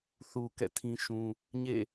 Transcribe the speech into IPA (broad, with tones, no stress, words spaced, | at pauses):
θu˨ kɛ̰˦˨tʰĩ˦ʃũ˦ | ɲḛ˦˨